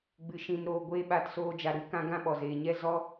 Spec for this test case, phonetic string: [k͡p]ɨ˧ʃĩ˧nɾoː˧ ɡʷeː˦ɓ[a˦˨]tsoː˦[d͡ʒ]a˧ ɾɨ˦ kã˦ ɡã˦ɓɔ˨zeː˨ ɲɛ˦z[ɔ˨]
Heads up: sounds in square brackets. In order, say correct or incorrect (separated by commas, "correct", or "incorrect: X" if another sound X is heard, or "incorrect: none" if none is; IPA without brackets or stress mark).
incorrect: ɡ͡b, correct, correct, incorrect: ɔ˦